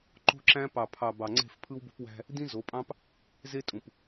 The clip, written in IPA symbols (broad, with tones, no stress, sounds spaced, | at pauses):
ǃ o̤˦ ǁ æ̃˦ p ɑ˨ pʰ ɑ˨ b ɑ˨ ŋ͡ǀ e̤˦˨ f pʰ ɯ˦ w b o̤˦ p w æ̤˦ | d ĩ˦ z o˨˦ pʼ ɑ̃˦ p | z e˦ tʼ ũ˨ p